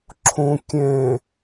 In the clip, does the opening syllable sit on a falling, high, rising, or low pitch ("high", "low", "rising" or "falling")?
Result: low